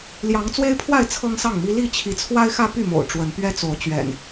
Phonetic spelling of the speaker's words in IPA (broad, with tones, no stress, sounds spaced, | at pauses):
l j ɑ˨˦ ŋ t͡s w e˦ ɪ̯ pʰ w a˥˨ ɪ̯ t͡sʰ ɤ˦ ŋ s ɑ˥˨ ŋ m i˦ l i˥˨ t͡ɕʰ i˨˦ t͡sʰ w a˦ ɪ̯ x ä˦ p y˥˨ m o̰˨˩ ʊ̯ ʈ͡ʂ w ə˨˦ n p ɥ ɛ˦ t͡s o˨˦ ʊ̯ t͡ɕ ɥ ɛ̰˨˩ n